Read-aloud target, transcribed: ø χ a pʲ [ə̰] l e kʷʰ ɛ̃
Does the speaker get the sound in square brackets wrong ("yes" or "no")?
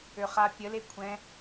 yes